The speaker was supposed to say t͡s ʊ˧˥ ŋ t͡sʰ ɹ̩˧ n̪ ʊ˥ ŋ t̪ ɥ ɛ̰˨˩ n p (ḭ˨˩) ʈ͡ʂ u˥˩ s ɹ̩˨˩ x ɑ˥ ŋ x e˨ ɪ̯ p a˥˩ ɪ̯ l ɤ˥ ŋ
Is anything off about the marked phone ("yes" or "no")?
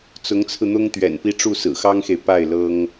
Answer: yes